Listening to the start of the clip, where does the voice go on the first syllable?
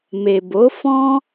low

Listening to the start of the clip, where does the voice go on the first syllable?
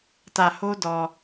low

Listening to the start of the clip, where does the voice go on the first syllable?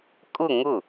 falling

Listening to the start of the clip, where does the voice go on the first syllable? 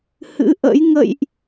rising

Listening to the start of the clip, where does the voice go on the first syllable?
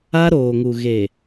high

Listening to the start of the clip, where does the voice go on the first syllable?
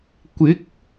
rising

